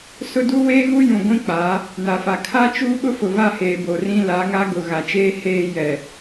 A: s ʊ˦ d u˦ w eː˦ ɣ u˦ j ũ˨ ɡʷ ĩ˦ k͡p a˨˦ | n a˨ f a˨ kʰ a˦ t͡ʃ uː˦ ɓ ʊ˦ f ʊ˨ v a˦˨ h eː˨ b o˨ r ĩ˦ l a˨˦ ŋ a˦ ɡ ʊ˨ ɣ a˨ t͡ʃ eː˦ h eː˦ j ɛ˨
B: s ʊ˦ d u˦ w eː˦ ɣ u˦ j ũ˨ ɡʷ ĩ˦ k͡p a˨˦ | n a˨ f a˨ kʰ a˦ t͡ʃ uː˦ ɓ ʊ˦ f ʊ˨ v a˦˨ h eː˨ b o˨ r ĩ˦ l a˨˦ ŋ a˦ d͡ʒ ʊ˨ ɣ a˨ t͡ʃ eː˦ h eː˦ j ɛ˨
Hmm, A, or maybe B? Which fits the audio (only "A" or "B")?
A